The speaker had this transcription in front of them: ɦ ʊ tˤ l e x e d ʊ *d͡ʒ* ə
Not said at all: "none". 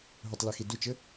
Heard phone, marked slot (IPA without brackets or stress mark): t͡ʃ